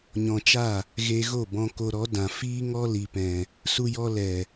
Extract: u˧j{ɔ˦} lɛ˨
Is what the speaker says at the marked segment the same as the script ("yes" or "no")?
no